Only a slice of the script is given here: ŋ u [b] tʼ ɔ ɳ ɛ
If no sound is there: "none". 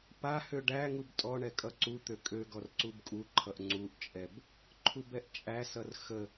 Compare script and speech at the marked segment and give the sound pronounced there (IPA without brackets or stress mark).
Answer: b